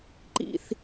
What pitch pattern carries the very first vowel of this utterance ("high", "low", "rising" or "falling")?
low